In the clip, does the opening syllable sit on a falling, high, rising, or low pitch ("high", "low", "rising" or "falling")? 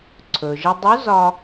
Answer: low